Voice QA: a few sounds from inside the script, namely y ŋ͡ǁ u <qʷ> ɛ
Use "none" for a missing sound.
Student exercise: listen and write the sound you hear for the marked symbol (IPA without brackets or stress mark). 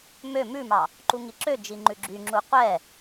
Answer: qʷ